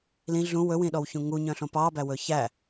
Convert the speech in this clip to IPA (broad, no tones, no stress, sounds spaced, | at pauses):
l ĩ ɮ ũ w ɵ w ĩ ɗ ɔ w ç ũ ŋ u ɲ œ̃ ɬ õ p ɑ b æ w ɵ ç æ